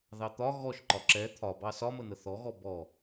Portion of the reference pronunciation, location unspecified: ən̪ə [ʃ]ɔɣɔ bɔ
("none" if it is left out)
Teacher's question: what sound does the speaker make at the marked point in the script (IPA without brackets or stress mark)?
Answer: θ